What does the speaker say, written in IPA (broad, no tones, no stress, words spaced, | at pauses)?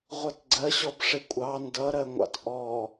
ʁʷʌtɡ͡ǀɜɕɔb ʂɪkʷʼɑ ndʌɾɜŋʷɑ̰t ʔɔ